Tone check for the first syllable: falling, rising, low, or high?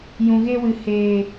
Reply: low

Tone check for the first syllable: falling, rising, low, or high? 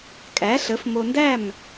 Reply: rising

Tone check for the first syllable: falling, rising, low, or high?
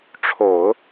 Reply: low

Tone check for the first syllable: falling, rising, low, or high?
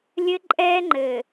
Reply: high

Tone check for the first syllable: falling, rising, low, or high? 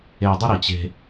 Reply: high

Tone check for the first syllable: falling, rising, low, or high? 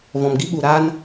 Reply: low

